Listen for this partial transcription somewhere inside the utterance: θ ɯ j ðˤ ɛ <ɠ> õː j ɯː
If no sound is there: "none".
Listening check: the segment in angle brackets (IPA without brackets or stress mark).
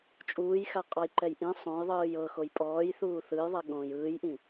ɠ